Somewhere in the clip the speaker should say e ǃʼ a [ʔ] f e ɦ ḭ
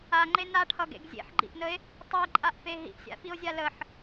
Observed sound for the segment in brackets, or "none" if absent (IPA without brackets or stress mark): ʔ